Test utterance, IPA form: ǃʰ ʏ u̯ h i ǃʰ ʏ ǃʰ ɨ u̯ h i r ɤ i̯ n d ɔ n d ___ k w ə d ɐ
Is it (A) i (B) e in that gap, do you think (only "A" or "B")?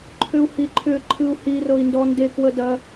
B